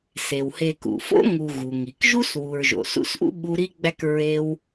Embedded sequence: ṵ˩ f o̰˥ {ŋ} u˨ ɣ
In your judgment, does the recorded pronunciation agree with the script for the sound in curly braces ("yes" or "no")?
yes